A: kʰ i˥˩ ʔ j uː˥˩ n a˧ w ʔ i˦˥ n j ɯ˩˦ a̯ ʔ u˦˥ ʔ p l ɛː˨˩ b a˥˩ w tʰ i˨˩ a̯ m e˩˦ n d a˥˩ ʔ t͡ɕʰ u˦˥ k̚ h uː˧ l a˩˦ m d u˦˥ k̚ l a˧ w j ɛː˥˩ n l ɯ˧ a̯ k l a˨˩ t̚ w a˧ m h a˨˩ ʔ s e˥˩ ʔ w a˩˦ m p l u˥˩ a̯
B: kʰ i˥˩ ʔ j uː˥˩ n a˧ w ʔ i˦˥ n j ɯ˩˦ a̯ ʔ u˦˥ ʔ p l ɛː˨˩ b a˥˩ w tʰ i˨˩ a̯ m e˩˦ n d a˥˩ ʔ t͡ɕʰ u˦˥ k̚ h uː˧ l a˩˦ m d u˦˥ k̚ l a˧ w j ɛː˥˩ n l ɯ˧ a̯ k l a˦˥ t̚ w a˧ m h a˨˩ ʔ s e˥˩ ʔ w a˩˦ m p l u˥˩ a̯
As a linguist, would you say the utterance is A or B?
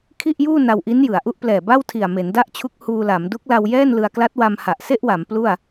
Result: B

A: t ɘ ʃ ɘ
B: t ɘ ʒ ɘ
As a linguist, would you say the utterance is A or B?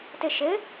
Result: A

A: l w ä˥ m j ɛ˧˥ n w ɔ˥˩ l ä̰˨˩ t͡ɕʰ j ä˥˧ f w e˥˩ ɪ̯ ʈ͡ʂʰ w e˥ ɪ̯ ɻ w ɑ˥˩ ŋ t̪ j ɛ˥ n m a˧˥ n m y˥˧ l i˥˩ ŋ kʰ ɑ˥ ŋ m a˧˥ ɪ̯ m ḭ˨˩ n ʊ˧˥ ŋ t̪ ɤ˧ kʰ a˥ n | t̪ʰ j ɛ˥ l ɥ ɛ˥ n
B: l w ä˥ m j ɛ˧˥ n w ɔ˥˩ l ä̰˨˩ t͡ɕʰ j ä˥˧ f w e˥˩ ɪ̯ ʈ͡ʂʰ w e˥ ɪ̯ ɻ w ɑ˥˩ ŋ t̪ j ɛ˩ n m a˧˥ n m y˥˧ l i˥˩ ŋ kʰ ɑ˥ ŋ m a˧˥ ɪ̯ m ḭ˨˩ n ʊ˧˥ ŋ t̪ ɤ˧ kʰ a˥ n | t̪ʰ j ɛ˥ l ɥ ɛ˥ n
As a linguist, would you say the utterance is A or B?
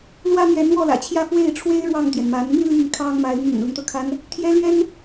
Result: B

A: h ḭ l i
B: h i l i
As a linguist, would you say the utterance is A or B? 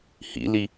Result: A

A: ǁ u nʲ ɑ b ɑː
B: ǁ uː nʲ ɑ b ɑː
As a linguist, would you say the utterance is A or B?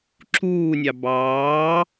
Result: B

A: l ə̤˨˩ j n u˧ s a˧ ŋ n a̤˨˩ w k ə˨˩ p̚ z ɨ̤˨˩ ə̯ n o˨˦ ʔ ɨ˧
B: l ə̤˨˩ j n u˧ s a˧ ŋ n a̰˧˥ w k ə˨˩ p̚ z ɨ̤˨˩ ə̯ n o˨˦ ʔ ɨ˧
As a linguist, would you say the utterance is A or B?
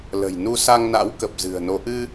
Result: B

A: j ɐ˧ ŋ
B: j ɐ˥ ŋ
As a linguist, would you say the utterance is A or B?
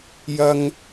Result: B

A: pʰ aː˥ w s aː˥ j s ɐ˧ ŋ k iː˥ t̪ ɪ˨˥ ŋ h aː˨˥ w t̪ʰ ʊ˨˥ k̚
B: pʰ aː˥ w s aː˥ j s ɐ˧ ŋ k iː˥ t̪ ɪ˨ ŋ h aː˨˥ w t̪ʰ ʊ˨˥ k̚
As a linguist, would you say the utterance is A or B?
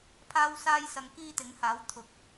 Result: A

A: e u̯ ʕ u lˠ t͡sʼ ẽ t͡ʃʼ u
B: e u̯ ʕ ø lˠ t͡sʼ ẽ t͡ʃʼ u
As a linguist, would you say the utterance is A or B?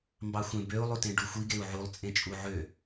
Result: A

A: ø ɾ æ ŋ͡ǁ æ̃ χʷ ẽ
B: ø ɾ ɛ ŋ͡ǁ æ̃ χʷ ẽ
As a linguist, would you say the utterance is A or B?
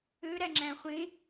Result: A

